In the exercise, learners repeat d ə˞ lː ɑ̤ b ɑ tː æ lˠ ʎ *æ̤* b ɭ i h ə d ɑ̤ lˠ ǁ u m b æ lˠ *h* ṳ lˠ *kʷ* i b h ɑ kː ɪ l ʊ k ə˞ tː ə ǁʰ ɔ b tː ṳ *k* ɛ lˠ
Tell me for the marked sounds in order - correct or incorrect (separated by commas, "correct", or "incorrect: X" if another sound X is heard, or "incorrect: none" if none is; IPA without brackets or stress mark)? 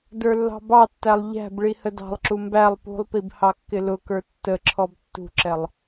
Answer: correct, incorrect: p, incorrect: p, incorrect: ǁ